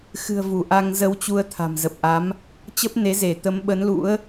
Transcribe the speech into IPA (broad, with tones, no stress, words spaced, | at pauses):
xɨ̤˨˩ə̯ vu˧˩ʔa˧ŋ zə˧wt͡ɕu˧ə̯ t̪ʰa̤˨˩mzə˨˩p̚ʔa˨˦m | t͡ɕə˦˥p̚ne˨˦ze˧˩ t̪ə˨˦mɓə˨˦nlṵ˧˥ə̯